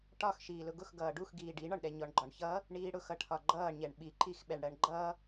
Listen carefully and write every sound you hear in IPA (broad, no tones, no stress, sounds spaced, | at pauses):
ʈ ɒ x ʃ iː l ʊ ɡ ʊ x ɡ ʌː ɖ u x ɡ iː ɖ i ɳ ɒ ɳ ɗ ɛ ɲ ɔ ɳ ɡ͡ǃ ɒ ɳ ç ʌ | ɳ iː ɽ ʊ x ʌ ʈʰ ɒ ɡ͡ǃ ʌː ɳ ɲ ɛ ɳ ɓ i ǃ i x ɓ ɛ ɳ ɽ ɜ ɳ ɡ͡ǃ ʌ